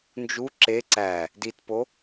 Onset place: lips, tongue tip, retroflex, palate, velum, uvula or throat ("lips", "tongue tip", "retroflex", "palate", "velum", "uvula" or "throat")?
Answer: tongue tip